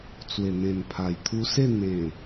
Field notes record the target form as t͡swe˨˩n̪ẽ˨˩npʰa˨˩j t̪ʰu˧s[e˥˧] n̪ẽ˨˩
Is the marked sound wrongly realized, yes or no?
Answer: no